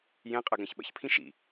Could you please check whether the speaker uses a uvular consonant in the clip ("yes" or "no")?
yes